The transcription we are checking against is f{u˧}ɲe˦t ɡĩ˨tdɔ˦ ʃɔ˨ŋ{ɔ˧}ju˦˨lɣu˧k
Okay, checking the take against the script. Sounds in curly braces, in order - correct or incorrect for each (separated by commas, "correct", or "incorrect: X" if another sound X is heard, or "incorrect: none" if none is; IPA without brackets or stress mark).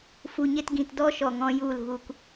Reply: correct, incorrect: ɔ̃˧